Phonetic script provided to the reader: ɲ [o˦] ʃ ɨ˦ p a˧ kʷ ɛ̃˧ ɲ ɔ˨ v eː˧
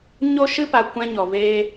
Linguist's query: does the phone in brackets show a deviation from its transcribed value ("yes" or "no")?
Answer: no